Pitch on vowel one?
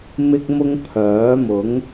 high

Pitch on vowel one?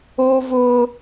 high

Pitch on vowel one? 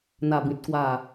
low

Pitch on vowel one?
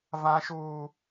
high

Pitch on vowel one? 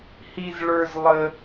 high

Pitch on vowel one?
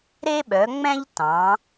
high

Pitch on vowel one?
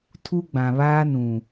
high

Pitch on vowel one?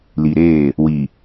low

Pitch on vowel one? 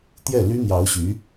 falling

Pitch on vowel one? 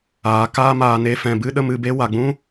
rising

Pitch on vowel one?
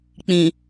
low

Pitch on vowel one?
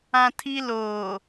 high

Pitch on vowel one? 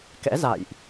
rising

